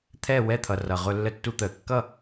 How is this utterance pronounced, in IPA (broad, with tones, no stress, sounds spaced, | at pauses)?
t̪ʰ ɛː˥˩ w ɛ˥˩ t̪ʰ ʌ˨˩ r ʌ˨˩ ʁ ʊ˧ lː ə˧ tː u˧ t̪ əː˨˩ kː ʌ˥˩